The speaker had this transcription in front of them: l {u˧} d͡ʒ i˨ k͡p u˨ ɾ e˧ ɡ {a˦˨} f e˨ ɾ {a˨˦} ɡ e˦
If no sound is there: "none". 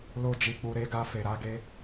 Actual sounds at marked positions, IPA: o˧, a˧, a˨˦

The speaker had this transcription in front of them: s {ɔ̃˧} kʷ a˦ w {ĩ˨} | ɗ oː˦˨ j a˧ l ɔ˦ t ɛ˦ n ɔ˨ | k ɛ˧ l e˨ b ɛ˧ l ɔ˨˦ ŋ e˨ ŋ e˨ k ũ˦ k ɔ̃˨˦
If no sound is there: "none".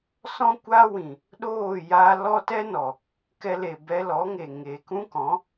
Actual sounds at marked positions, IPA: ɔ̃˦, ĩ˨

